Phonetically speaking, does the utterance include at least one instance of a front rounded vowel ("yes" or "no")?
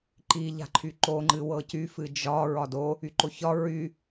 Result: yes